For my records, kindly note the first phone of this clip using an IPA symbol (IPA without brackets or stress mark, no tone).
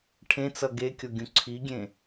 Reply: ʈʰ